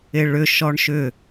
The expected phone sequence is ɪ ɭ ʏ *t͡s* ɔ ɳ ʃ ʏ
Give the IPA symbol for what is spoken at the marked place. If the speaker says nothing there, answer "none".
ʃ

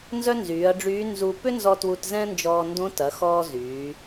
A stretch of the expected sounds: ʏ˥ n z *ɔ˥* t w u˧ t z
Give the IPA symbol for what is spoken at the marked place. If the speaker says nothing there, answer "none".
ɔ˧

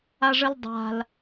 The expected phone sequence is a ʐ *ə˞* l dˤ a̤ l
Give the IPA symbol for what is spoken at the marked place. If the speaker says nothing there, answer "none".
ə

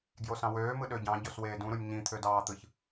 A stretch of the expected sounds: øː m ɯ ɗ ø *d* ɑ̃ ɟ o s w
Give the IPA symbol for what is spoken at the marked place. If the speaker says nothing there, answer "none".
ɟ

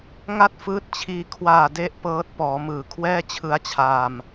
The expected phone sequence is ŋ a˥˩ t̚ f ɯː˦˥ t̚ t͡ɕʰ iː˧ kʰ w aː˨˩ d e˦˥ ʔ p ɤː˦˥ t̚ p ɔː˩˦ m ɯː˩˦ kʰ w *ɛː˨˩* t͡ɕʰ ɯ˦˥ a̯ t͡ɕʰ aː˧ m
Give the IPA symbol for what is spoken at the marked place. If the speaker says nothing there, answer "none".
ɛː˥˩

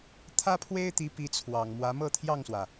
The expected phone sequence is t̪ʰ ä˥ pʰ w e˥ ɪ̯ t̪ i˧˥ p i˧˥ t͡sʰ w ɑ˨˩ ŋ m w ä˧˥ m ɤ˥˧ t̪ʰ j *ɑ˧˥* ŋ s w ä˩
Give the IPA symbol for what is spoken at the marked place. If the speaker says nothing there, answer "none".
ɑ˥˩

